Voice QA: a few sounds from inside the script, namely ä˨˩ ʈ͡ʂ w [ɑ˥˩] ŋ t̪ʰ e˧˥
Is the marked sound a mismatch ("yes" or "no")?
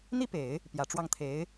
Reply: no